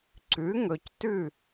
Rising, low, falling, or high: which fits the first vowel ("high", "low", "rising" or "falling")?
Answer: rising